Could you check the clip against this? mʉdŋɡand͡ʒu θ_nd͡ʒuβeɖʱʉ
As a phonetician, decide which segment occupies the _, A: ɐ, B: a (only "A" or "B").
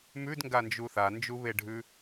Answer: B